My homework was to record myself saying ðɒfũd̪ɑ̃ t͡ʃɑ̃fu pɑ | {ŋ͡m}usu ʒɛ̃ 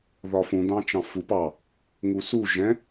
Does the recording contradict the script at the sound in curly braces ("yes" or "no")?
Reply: yes